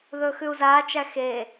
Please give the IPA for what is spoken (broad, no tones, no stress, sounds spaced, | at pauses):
ð ɵː x ʉ u̯ z aː t͡ʃ æ x e